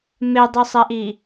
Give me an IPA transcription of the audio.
medˤusˤɛʔi

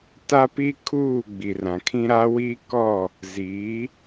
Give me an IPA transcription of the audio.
ta˦ pi˦kʰuː˦˨ ɡ͡bi˨rã˨kʰĩ˦ ɾa˦wi˦kɔ˦˨ | ziː˨˦

